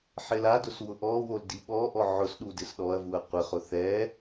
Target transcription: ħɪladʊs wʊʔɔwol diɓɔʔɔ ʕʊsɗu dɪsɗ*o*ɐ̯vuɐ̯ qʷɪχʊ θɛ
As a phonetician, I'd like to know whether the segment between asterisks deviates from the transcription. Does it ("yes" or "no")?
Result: yes